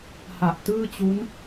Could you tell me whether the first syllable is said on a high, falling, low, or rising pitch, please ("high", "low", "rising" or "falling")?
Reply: low